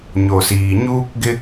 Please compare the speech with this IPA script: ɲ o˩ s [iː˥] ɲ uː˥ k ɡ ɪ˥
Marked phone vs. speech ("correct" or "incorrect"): incorrect